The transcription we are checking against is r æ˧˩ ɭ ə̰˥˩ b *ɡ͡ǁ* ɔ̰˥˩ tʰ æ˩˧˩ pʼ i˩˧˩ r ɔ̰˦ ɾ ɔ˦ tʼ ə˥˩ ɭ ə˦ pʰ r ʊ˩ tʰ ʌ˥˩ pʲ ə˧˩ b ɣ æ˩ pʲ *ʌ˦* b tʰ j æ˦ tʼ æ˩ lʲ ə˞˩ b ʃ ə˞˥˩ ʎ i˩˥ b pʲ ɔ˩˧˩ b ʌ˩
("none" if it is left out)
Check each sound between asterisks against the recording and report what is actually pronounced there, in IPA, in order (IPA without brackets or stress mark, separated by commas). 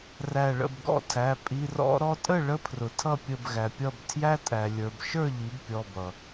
ɡ, ʌ˧˩